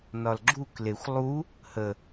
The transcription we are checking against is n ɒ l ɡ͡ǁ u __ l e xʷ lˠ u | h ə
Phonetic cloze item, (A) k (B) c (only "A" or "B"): A